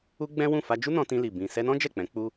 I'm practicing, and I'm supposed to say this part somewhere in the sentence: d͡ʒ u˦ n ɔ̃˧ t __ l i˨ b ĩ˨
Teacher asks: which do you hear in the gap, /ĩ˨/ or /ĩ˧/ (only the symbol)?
ĩ˧